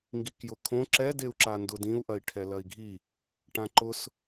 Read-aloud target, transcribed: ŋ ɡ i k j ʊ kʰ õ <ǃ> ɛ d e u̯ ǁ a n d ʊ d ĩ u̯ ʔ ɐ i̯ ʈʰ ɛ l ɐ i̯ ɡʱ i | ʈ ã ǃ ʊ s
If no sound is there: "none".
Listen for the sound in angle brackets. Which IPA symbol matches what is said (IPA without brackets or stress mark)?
ǁ